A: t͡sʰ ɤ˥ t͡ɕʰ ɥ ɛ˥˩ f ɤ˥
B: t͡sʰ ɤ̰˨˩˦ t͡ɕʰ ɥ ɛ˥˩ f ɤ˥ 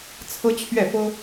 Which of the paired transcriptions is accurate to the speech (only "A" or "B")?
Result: A